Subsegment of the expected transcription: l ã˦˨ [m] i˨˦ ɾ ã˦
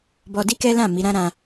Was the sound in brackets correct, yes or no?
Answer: yes